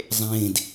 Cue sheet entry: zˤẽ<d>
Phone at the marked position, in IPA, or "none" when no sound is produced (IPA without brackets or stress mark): d